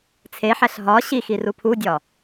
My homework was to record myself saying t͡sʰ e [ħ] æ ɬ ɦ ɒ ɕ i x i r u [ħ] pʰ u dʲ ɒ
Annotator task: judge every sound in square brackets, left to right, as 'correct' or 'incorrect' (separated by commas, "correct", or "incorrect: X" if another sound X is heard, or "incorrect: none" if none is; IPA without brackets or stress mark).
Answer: correct, incorrect: none